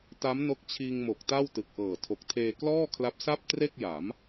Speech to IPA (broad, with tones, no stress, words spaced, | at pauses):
ta˦˥mno˦˥k̚t͡ɕʰiː˧ŋmo˨˩k̚ ta˥˩wtɯ˨˩k̚ʔɤː˨˩ tʰo˨˩k̚tʰeː˧klɔː˥˩kʰla˦˥p̚ sa˥˩p̚tre˥˩k̚ja˩˦m